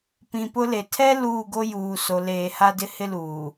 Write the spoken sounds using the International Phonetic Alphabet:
p ĩ˨ p ʊ˦ l e˨ tʰ ɛ˦ l uː˦˨ ɡ o˦ j uː˨ s o˨ l eː˨ h a˦ d ɪ˦ h ɪ˦ l uː˨

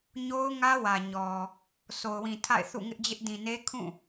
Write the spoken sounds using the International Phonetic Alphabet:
ɲ o˦ ʊ̯ ŋ ä˦ w ä˨ ɲ ɔ˨ | s o˨ ʊ̯ w ĩ˨ tʰ a̰˦˨ ɪ̯ θ ṵ˦˨ ŋ ɪ˦ ʔ d͡ʑ ɪ˦ ʔ d ĩ˨ n e˦ kʰ ũ˦˨

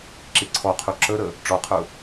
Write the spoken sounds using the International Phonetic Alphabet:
ǁ i ǀʰ ɔ qʰ u ǁ ə ɾ ə | ʈ͡ʂ ɔ qʰ ʊ

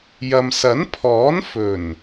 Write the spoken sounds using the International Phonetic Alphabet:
j ɐ˨ m s ɐ˨˥ n pʰ ɔː˨˥ n f ɵ˨˩ n

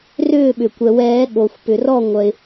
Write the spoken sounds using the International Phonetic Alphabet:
r ʏː˥˨ ɓ ʏ˩ kʷ ɛ˩ w ɛː˨˩˦ ɠ o˩ xʷ p ʏ˩ r ɔ˥˨ ŋʷ œ˩ ɪ̯

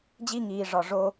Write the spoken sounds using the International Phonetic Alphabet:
d͡ʑ i˦ ŋ iː˨ ʐ ɒ˨ ʐ o˧

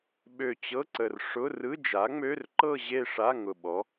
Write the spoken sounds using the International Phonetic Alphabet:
ɓ ø˨˩ t͡ɕ ɤ˧˥˧ ǀ ə˨˩ r ʂ ʊ˧˥˧ r ɯ˧˥˧ d͡ʒ a˩˥ ŋ͡m ø˧˥˧ r ǃ ɤ˥˧ ʑ e˥˧ ʂ a˧˥˧ ŋ ʊ˨˩ ɓ ɔ˩˥

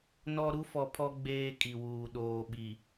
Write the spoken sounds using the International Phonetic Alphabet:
n ɔ˦ ɾ u˦ f ɔ˨ pʰ ɔ˦ ɡ͡b eː˦ kʼ i˨ w uː˨ ɗ oː˨ ɓ i˨

